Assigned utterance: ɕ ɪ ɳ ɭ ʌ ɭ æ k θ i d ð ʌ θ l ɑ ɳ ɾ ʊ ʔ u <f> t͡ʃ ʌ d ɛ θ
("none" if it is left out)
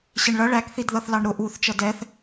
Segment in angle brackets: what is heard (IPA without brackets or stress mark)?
θ